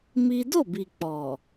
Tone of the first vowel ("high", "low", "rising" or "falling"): high